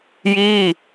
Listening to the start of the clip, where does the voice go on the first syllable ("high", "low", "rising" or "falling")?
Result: falling